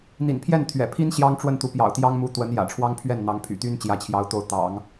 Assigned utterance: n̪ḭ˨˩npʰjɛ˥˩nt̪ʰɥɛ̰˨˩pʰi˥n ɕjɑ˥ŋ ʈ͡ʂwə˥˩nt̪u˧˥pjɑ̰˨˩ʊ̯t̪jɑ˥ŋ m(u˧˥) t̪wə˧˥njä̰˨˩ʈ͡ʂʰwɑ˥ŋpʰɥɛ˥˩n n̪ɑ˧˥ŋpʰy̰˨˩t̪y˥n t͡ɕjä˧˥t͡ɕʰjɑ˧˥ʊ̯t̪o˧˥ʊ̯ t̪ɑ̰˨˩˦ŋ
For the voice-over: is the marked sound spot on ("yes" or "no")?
yes